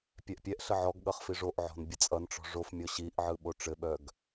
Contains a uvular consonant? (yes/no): yes